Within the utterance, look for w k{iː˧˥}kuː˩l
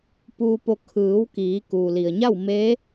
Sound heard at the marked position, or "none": iː˩˧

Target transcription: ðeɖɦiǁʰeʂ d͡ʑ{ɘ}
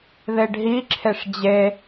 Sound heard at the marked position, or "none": e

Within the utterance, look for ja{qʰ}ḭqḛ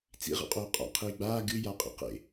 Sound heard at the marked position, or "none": qʼ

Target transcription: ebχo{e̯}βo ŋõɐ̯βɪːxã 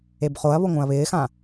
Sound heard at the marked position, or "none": ɐ̯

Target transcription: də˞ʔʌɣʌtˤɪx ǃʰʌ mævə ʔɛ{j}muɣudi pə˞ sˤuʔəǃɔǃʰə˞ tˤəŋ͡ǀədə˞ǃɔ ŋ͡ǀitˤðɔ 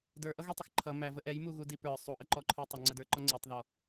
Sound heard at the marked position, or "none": j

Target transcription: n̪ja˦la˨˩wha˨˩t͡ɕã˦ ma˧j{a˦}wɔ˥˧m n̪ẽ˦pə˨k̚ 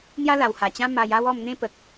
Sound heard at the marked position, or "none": a˦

